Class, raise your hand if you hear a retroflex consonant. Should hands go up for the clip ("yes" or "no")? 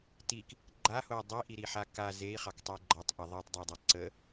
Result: no